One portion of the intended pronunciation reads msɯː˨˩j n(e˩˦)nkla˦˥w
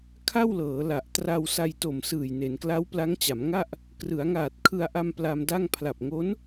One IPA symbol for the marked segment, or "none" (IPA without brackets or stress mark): e˩˦